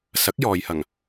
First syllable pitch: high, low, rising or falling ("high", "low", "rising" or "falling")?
rising